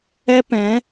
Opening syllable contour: high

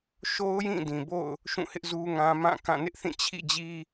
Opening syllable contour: high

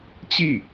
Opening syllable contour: falling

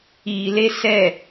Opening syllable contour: low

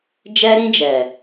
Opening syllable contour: high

